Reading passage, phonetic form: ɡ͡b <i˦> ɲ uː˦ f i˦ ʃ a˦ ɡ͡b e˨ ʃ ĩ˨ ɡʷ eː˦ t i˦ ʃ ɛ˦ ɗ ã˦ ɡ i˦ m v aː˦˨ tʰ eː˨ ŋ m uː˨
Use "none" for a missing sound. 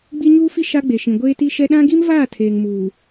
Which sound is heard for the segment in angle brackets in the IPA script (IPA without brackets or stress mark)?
i˦